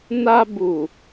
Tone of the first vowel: high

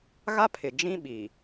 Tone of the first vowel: high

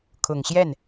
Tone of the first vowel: low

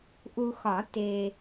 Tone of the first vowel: low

